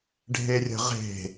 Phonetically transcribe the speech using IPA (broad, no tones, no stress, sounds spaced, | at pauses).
ɖʱ e rʲ ə̤ ʁ e̤